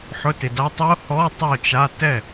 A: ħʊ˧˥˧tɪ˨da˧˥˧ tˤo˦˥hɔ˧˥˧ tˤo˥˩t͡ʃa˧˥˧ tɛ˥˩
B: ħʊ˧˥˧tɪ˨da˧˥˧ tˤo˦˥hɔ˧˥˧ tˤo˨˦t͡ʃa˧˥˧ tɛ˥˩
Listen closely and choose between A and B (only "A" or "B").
A